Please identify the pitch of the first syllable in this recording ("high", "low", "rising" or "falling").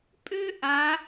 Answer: high